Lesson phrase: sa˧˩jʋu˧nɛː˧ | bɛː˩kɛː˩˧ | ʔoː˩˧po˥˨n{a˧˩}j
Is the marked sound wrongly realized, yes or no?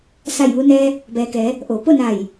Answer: no